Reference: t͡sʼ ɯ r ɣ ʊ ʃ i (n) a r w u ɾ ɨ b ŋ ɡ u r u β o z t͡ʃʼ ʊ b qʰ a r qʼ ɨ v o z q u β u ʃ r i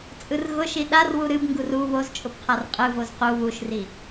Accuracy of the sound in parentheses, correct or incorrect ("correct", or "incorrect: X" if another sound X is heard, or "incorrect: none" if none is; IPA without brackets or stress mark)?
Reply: incorrect: ɗ